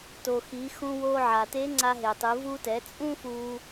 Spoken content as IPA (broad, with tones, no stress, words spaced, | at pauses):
to˩xi˩˧xũ˧ wo˧ʕa˩ te˧˥ŋ͡ǀa˧ɦe˩tˤɯ˩˧ vu˧tɛ˩˧ t͡sʼũ˥fu˧